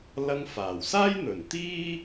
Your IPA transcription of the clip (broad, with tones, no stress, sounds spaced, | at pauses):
l ɐ˧ ŋ f aː˨˩ w s aː˥ j n̪ ɵ˨˩ n t̪ iː˥